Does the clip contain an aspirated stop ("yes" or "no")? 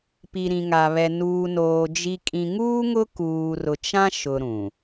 no